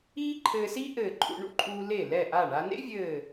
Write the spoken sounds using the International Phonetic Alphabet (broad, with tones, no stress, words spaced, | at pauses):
iː˥ ǃʰɘː˧si˥ ʔɘː˧˩ǃʼṵ˧ɳṵ˥ǃʼuː˧ le˧˩lɛ˧˩ʔa˧˩ ɳa˧nḛ˥vʲɘː˧˩